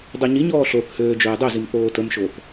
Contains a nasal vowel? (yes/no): no